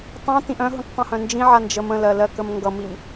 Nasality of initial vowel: nasal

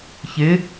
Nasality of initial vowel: oral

